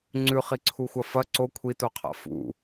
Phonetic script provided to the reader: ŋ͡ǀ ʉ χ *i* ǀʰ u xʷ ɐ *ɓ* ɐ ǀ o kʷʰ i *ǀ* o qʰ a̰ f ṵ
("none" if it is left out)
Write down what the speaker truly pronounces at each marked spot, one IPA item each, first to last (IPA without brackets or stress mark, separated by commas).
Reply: i, f, t